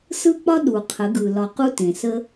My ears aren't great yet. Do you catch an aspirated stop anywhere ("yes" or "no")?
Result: yes